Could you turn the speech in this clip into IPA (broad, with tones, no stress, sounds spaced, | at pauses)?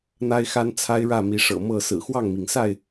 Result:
n̪ a˦ ɪ̯ x a˦ n t͡sʰ a˦ ɪ̯ ɻ ä˥˨ m i˨˦ ʂ ɤ̰˨˩ m ɤ˥˨ s ɹ̩˨˩ x w ɑ˥˨ ŋ m i˩ ŋ s a˥˨ ɪ̯